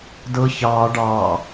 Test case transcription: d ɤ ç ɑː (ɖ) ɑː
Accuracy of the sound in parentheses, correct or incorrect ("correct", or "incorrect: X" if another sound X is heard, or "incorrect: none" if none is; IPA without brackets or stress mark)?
correct